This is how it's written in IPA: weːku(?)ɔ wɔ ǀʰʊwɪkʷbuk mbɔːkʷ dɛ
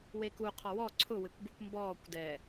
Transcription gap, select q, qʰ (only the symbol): qʰ